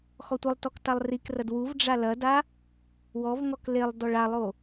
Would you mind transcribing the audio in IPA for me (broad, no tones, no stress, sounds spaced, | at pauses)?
x ɔ tʷ ɘ lˠ t ɔ k t a lˠ r i k r ɐ d w u v ɖ͡ʐ a l ɐ d a | w ɔ v ŋ ɔ k l e lˠ d ɔ ɭ a lˠ o